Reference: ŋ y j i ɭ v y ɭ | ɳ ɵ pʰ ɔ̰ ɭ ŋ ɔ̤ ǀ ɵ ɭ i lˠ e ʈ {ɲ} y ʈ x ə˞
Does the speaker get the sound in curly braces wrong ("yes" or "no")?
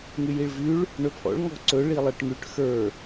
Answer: yes